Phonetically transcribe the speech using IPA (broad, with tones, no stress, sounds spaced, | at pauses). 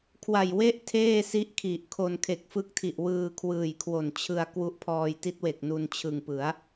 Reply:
kʰ w a˨˩ j w e˥˩ ʔ tʰ eː˥˩ s i˦˥ ʔ kʰ i˨˩ ʔ kʰ o˧ n kʰ e˨˩ k̚ f ɯ˦˥ k̚ tʰ i˨˩ ʔ w ɯː˧ kʰ w ɯː˨˩ j kʰ w o˨˩ n t͡ɕʰ ɯ˧ a̯ k w u˦˥ ʔ pʰ ɔː˧ j t i˦˥ t̚ w e˨˩ k̚ n u˧ n t͡ɕʰ ɯ˨˩ ŋ p ɯ˩˦ a̯